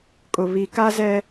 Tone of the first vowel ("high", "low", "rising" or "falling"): low